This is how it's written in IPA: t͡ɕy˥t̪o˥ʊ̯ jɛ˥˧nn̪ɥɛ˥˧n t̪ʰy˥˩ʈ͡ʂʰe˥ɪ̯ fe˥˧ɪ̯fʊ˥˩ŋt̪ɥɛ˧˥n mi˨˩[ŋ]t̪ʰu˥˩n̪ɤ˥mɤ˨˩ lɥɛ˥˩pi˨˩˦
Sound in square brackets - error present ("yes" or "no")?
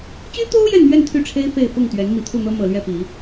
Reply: yes